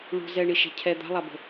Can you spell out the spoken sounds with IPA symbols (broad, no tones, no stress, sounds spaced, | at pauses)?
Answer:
ɭ ṳ z ɛ ɳ i ʃ ɛ̤ cʰ ɛ d̪ a̤ lˠ a b ə̤